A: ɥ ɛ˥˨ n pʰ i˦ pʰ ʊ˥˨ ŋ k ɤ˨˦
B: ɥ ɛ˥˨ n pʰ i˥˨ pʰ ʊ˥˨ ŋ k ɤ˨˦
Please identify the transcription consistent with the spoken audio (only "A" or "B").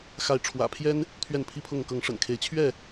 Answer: A